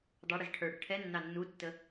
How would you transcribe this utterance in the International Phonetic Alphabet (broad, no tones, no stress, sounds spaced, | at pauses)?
dˤ ɑ ɽ i z ʈʰ ə˞ ɽ ə ʈʰ ɛ nː ɑ nː u tː ə